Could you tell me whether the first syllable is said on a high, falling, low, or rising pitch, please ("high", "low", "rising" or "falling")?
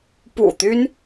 low